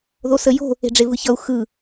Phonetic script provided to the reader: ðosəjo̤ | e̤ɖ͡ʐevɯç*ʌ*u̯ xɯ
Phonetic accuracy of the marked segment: correct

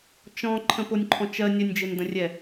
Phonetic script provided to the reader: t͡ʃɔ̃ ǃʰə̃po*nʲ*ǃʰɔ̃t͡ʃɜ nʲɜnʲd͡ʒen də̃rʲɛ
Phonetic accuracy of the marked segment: correct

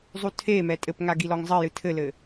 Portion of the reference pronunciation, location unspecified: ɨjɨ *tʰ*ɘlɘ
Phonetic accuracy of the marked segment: correct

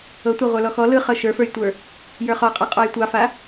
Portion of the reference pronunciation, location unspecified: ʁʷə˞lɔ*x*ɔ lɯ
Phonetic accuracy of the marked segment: correct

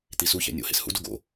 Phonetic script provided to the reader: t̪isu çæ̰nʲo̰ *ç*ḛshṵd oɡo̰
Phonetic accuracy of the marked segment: incorrect: h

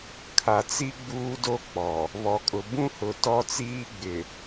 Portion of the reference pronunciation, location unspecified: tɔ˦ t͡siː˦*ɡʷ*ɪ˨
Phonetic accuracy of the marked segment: incorrect: ɡ͡b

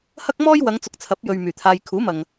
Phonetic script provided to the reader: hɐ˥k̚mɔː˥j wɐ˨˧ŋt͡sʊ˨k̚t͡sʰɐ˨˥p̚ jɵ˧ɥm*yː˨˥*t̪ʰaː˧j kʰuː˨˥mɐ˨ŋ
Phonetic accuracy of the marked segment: incorrect: yː˨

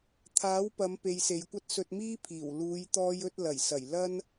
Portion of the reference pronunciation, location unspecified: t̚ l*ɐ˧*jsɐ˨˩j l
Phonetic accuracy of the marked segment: incorrect: ɐ˨˩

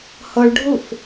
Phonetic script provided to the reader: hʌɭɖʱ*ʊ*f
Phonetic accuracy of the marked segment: correct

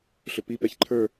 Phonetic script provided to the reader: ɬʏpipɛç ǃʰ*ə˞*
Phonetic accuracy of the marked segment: correct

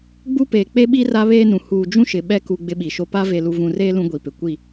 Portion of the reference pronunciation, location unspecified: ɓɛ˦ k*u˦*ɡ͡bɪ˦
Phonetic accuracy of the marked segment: correct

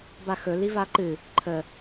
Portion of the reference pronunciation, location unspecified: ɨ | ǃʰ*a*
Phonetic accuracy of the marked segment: incorrect: ə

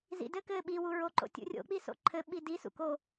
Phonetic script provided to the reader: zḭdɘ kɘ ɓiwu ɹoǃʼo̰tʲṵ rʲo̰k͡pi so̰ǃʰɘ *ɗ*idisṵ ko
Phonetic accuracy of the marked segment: incorrect: ɓ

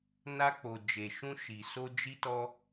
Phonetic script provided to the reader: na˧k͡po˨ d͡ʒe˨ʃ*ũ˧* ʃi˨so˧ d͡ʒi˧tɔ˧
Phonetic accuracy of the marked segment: correct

